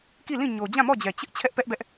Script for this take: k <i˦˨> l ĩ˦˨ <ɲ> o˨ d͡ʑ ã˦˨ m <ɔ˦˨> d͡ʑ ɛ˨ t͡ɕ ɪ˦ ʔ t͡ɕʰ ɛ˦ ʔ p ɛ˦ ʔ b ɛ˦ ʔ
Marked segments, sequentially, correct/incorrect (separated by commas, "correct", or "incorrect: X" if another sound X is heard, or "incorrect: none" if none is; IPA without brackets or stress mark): correct, correct, correct